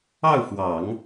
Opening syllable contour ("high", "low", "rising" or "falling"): falling